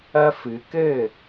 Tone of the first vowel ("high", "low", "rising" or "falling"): high